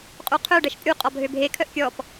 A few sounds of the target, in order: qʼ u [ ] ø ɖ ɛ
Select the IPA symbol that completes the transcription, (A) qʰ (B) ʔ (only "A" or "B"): A